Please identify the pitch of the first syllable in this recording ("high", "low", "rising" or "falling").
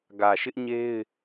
low